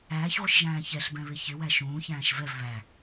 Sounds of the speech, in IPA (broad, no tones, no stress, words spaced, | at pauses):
æːçʁʷɪʃʒæ̃ː çɛɬbɛ̃βɪ çɪwæ ʃũːçæ̃ːʃ vɛv βæ